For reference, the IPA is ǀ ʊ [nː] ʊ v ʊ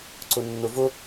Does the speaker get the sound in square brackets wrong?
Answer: no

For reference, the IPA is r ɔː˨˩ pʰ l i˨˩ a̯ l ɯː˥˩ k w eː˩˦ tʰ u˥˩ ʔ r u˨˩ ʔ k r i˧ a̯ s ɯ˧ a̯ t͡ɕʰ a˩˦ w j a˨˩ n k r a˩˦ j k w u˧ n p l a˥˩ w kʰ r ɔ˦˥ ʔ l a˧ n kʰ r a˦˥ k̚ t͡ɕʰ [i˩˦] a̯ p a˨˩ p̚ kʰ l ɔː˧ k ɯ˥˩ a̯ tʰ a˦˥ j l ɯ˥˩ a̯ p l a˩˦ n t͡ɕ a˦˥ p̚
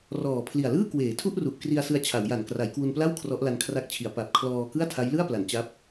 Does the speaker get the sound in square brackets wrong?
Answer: no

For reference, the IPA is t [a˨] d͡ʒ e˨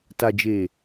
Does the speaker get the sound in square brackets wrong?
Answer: no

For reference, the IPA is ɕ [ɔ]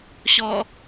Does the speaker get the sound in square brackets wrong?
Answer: no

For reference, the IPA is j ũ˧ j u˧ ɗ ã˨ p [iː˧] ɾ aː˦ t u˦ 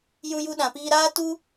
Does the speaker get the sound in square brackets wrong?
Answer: no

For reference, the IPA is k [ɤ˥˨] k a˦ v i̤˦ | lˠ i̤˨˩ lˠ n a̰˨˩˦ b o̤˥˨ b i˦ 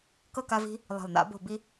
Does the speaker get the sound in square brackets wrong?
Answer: no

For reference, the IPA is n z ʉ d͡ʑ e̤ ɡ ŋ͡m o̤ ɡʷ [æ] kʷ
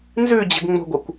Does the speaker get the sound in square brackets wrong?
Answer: yes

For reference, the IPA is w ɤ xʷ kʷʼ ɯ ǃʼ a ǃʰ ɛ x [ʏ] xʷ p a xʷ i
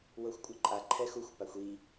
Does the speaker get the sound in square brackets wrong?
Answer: yes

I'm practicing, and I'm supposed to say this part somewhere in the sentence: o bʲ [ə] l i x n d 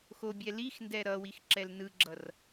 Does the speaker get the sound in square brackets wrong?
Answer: yes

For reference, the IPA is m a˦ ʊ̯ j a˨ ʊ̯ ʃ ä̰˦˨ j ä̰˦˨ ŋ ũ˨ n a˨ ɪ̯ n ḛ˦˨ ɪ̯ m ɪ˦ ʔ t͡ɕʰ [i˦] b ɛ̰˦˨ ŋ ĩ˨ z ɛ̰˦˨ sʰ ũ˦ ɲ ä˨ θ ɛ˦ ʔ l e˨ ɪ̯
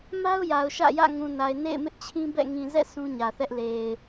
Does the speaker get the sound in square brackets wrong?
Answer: yes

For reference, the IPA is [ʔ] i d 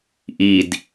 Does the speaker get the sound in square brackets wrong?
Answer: no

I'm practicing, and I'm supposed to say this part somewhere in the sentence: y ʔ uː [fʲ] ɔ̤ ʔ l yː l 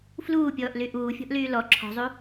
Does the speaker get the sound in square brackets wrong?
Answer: no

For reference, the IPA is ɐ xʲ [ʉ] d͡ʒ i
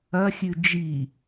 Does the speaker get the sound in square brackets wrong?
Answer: no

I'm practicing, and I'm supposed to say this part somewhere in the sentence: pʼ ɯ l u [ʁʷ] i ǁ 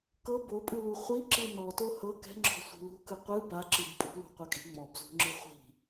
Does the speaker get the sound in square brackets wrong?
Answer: yes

